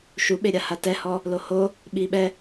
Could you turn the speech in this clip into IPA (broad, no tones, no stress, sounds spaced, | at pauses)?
ʃ u ɓ e ɾʲ a h a t ɛ h ɔ | l o h o | ɓ i ɓ ɛ